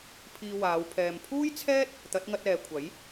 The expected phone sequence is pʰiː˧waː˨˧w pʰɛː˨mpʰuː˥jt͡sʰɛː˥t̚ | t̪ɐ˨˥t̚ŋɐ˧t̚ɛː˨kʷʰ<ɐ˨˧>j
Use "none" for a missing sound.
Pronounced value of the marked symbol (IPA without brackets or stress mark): ɐ˨˥